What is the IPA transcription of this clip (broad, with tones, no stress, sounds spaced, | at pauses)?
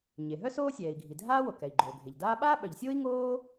ɲ e˩ ɦ œ˥ s oː˥ sʲ ɛː˩ i̯ ɡʱ i˩ dʱ aː˥ w o˩ k ɛ˩ i̯ ɡ͡ǃ oː˩ ɡʱ e˩ ʎ d aː˥ ɓ aː˥ ɓ œ˩ ʎ sʲ oː˥ i̯ ŋ oː˥